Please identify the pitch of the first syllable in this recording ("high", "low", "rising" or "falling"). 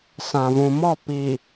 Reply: low